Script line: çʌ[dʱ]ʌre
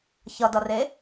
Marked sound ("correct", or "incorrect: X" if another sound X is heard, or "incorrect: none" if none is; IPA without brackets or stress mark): incorrect: d